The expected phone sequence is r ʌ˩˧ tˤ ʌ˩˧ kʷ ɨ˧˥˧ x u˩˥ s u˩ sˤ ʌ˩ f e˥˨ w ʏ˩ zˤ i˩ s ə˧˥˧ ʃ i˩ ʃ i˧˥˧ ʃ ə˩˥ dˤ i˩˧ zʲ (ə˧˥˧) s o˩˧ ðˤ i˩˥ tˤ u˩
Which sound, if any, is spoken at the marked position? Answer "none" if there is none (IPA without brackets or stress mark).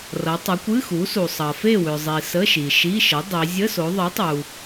ə˧˥˧